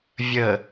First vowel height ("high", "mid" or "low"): mid